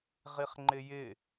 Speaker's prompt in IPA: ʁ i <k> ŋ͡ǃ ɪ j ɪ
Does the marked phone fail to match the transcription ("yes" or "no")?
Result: yes